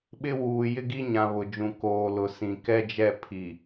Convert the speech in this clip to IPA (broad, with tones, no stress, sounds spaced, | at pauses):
ɓ ɪ˦ w uː˨ j ɪ˦ ɡ i˦ ɲ ã˨ β ʊ˨ d͡ʒ ũ˨ k oː˨ l ʊ˨ s ĩ˨ k ɛ˦ d͡ʒ ɛ˦˨ pʰ i˨